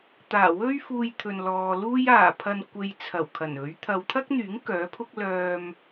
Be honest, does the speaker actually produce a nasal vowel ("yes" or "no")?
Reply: no